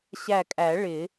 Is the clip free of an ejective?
no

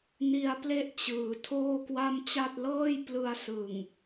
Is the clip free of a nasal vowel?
yes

